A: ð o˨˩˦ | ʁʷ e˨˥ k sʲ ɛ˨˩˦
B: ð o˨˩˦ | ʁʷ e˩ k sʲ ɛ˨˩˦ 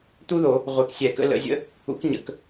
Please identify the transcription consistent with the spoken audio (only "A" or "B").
A